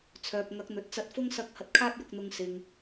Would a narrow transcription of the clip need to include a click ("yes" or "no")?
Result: no